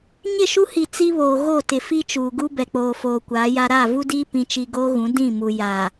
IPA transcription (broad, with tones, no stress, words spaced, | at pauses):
ɲɪ˦˨ʃu˦hi˨ t͡si˦βoː˨ ɣo˦˨ tɪ˨ fi˦t͡ʃuː˨ɡu˦ bɛ˨k͡poː˨ foː˨kʷaː˨˦ja˦ ɾaː˦˨vu˦diː˦ pĩ˨t͡ʃi˨ ɡoː˦ɣũ˨˦ dĩ˦˨mu˨ ja˨